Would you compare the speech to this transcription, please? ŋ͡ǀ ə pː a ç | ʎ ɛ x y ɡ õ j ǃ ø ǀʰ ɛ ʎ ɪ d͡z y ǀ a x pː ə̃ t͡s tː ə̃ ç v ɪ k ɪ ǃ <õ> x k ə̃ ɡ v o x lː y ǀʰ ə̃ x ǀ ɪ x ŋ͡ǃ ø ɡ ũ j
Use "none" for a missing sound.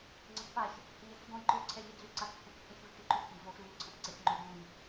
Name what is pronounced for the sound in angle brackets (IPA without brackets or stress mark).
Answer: ũ